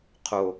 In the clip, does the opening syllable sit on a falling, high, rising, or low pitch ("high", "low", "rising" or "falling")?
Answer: falling